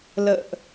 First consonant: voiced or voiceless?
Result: voiced